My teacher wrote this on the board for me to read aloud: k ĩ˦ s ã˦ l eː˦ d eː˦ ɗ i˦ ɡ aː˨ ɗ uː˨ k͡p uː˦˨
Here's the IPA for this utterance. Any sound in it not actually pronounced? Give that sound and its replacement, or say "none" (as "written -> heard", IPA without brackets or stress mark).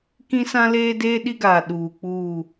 none